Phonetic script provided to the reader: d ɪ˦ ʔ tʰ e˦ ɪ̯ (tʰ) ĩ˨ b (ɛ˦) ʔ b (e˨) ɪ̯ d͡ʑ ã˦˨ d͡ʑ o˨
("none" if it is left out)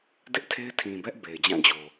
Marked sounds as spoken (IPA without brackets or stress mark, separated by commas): tʰ, ɛ˦, e˨